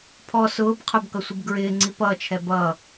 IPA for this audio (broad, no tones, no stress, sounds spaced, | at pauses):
pʰ ɔ s ʊː b qʰ ʊ b k ʌ sʷ ɪ b ɡ ɹ ɪː ŋ͡ǀ i p ʌː t͡ʃʰ ɛ b ʌː